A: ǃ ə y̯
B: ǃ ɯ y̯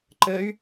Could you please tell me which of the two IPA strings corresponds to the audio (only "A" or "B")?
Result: A